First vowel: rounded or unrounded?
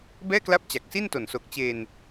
unrounded